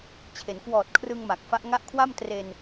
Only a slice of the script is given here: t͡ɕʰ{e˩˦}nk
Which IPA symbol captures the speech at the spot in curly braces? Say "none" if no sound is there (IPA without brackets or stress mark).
e˩˦